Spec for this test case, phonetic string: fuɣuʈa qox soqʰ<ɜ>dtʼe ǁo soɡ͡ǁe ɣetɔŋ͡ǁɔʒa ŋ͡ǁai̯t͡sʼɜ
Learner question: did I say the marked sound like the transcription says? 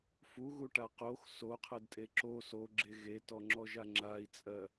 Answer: yes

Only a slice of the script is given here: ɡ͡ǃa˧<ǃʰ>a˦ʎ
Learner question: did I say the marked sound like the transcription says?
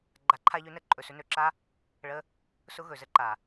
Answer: yes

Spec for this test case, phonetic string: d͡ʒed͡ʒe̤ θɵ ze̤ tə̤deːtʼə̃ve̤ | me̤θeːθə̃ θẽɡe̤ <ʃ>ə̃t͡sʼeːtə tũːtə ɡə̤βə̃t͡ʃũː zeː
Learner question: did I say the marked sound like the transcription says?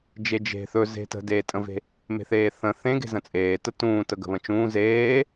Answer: no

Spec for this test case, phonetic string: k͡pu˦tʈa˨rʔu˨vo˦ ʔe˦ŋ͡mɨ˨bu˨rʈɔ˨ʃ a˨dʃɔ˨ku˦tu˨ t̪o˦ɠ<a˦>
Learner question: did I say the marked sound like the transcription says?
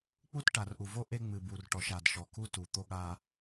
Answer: yes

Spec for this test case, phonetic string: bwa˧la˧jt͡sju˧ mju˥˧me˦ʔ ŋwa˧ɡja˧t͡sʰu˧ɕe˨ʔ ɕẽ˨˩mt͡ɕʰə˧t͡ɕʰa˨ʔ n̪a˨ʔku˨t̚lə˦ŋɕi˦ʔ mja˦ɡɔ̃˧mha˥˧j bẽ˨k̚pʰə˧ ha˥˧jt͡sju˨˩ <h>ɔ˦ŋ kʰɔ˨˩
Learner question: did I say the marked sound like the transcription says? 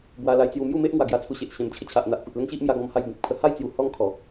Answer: yes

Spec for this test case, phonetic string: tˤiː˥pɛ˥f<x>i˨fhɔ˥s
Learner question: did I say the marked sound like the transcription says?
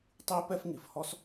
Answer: no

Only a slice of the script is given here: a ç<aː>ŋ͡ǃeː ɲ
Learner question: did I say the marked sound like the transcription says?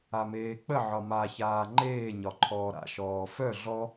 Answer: yes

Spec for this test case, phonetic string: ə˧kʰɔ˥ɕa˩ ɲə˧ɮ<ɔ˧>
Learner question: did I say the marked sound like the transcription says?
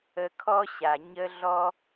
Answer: yes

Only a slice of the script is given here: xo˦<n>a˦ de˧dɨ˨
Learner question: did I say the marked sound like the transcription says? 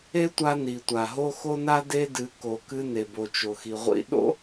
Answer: yes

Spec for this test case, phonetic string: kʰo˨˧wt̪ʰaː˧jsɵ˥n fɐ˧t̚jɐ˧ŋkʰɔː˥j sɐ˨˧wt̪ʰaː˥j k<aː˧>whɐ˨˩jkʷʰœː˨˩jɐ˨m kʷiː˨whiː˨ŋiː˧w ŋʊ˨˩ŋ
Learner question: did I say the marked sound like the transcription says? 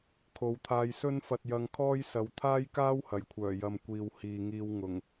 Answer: no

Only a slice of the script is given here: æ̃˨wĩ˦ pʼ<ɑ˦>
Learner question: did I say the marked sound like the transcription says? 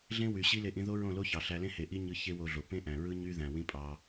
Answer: yes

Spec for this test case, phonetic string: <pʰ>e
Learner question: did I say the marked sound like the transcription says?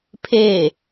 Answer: yes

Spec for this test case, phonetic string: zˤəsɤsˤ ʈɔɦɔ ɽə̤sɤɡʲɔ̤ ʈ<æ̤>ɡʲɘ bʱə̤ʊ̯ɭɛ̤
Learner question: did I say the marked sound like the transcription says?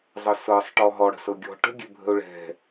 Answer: no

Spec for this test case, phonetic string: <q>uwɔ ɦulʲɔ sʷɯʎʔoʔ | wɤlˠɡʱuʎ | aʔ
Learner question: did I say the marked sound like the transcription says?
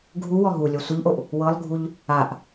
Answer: no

